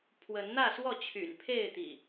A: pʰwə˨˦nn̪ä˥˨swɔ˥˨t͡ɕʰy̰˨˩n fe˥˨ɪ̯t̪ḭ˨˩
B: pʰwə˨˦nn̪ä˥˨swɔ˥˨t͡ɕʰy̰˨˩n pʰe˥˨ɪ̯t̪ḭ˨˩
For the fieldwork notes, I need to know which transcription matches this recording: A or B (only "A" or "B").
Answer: B